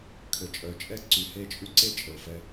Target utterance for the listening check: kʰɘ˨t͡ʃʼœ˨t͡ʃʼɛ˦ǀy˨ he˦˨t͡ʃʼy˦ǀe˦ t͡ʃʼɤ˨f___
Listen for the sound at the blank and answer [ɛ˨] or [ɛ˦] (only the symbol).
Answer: ɛ˦